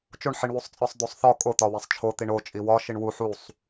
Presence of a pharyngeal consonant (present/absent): present